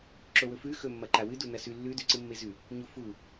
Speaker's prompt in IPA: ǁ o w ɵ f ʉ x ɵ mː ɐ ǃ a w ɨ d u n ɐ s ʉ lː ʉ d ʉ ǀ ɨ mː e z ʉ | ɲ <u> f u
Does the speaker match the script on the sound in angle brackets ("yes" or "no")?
yes